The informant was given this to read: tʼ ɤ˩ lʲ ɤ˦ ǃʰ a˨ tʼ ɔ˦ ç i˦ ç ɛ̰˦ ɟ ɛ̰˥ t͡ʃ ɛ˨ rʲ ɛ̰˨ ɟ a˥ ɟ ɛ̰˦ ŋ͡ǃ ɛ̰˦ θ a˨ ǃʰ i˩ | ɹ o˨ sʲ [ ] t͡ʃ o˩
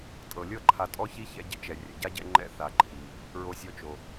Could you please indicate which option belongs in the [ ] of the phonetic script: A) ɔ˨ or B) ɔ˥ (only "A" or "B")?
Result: A